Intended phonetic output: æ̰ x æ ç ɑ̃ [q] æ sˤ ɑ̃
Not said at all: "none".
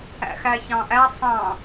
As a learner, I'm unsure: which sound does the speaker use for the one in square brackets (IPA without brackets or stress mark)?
ʔ